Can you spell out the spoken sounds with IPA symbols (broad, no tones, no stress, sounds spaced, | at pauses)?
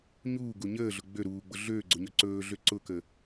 ɲ uː ɡ u ɲ əː ɮ ʊ ɡ͡b ø ɾ uː ɡ͡b ʊ ɮ øː ɡ͡ǀ ʊ ɲ ɵ ǀ ɵː ɮ ø ǀ ʊ k ə